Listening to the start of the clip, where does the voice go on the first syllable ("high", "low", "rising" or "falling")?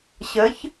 rising